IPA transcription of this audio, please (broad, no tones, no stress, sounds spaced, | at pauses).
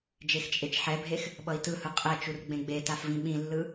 d͡ʒ e x t͡ʃʼ e t͡ʃ ħ ɛ bʱ e x | ɓ ʌ i̯ t ɯ h ɯ qʼ ɛ t͡ʃ u r ɡ͡b ẽ ɡ͡b e t a f v ĩ ɓ ĩ lː ɯ